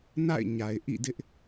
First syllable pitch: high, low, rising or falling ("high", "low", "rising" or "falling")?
falling